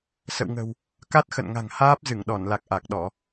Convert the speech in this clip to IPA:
sə̰˧˨wŋə̤˨˩w | ka˦˥t̚xə̰˧˨nŋa̤˨˩ŋhaː˦˥p̚ zɨ˧˩ŋɗɔ˧˩nla˨˩k̚ ʔa˨˩k̚ɗɔ˧˩˨

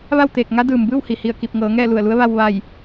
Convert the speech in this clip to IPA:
ʋa˥˨wt̪eː˧˩k̚ŋa˧˥ dɯː˩m bɯː˥˨whi˩hi˧˩ə̯ ki˧˩p̚ŋɤː˩˧ ŋɛː˥˨lu˧˩ə̯lu˧˥ə̯ ʋa˧w ʋa˧˩j

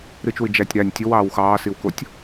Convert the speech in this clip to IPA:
ɾɨt͡ʃwɨ d͡ʒætʲ ɾænʲ tʲowɑːw xɑːsiwkotʲ

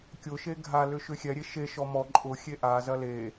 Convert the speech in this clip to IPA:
kʲʊʃe ɡʱalʏ ʃʏxʲɛɾʲe ʃeʃɔ mɔ ǃʼʊ xʲeʔazɐ le

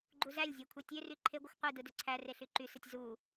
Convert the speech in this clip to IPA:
ɡ͡ǃuzælʲzʲæ kʷʰetʲøry ǃʰeɡʷɯxʷ qʷidɯ døǀʰære ɬyǃysɯtʲ zu

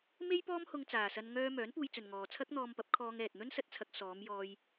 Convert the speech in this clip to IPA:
me˥jpɔː˥mhʊ˧ŋ t͡saː˨sɐ˧n ŋœː˧ mœː˨˥npuː˧jt͡sɵ˨n ŋɔː˨t͡sʰɐ˥k̚n̪ɔː˧mpɐ˨˥p̚ kʰɔː˧ŋɛː˨t̚ n̪ɵ˥nsɐ˧t̚t͡sʰɐ˧k̚ sɔː˨˧m jɔː˧j

